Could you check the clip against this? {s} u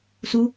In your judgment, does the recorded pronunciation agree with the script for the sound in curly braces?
yes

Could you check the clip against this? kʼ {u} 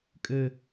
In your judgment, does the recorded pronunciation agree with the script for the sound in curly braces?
no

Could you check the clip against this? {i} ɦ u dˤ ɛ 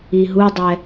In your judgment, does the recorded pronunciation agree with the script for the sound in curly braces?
yes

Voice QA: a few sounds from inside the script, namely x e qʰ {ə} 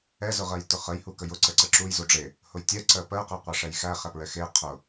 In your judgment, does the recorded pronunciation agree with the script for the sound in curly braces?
no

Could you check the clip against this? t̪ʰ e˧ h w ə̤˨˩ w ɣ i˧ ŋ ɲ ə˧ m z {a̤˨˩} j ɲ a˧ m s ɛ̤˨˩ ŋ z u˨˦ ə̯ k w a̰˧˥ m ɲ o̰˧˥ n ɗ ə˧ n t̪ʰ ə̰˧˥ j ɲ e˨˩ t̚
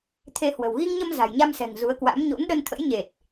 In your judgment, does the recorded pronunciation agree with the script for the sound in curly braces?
yes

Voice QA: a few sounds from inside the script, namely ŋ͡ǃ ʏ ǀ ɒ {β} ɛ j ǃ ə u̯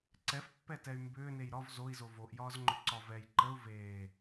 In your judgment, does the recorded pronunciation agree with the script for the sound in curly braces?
no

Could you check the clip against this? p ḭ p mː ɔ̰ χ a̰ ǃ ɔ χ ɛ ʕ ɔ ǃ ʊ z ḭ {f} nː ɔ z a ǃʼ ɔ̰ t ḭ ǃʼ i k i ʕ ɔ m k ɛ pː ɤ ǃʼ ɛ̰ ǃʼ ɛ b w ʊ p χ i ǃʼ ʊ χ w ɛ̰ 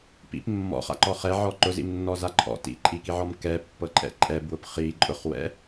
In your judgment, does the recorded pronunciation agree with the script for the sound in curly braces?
no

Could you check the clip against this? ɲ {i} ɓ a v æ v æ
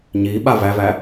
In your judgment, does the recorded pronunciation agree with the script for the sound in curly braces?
yes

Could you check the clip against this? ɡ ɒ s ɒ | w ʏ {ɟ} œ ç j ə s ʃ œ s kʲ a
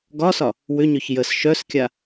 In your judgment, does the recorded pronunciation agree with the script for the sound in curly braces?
no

